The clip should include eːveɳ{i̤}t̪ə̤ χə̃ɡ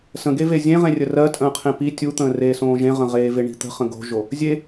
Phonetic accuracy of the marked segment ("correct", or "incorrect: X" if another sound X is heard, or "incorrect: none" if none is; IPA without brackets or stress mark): correct